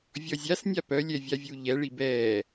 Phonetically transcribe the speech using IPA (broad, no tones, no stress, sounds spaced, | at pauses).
vʲ ɔ zʲ a s nʲ a p œ lʲ ɛ vʲ a vʲ u ʎ ɛ ɭ i b ɛː